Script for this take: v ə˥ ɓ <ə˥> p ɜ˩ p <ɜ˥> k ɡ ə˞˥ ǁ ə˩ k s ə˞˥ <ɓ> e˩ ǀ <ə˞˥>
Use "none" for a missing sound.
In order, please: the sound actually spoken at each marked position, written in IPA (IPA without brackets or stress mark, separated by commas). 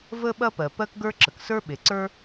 ɐ˥, ɜ˥, ɓ, ə˞˥